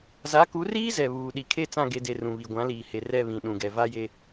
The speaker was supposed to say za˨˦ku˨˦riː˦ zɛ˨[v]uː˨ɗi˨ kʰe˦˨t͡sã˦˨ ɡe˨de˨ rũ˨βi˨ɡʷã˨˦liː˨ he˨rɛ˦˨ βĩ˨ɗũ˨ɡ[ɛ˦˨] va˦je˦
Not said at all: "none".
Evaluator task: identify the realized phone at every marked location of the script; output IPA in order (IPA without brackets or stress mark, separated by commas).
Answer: β, ɛ˨